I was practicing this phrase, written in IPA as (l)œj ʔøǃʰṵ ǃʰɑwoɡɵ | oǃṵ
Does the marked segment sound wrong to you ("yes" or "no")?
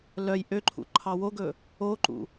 no